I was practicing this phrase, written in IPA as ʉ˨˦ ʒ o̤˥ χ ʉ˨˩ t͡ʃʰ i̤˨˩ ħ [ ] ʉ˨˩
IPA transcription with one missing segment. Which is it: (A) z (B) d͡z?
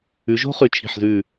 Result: A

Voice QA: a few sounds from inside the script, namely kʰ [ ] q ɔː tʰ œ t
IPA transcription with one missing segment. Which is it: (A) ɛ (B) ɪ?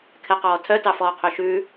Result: A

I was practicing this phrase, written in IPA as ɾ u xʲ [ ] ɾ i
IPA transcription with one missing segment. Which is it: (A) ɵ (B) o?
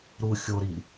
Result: B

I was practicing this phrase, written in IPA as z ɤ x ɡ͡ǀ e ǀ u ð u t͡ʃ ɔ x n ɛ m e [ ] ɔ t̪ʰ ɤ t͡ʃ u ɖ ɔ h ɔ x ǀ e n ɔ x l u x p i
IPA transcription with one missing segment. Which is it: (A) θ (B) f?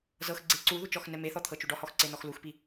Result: A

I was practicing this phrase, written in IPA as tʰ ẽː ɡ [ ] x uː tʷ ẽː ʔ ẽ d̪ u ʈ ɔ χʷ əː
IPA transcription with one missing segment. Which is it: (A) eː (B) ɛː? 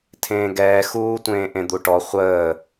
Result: B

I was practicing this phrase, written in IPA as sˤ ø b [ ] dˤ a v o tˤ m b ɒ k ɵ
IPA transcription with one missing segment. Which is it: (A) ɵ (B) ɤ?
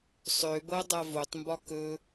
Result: B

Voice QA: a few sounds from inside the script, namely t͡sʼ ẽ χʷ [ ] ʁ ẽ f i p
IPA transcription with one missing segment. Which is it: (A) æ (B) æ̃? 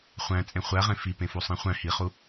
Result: A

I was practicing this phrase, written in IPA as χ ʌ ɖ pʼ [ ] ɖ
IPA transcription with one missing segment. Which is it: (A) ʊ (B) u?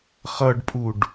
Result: B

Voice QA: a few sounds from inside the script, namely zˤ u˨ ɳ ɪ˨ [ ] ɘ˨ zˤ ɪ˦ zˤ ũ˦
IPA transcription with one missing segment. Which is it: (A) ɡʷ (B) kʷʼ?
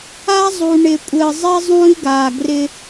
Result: B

